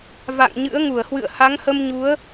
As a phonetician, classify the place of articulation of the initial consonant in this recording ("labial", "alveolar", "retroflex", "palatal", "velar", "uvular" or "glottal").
labial